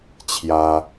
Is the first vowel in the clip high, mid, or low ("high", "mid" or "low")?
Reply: low